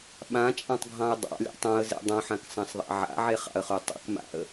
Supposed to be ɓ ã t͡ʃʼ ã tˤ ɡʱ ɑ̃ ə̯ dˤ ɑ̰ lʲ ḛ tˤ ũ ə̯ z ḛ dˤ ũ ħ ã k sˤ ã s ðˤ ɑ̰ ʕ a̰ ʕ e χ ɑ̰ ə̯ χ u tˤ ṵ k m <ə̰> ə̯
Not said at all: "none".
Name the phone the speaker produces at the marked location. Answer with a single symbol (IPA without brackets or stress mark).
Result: a̰